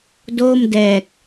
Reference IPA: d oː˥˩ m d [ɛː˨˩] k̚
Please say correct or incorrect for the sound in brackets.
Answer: correct